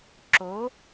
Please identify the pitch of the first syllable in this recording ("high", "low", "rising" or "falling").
rising